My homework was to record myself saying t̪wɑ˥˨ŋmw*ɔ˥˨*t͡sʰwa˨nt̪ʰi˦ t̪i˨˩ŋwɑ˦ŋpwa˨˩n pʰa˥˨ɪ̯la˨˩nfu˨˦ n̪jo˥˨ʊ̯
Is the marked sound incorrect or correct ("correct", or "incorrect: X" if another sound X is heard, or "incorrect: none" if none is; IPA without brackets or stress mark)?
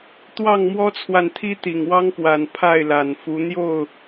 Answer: incorrect: ɔ˦